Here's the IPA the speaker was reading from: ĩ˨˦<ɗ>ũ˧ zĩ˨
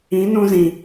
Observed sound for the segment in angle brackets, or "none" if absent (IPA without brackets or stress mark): n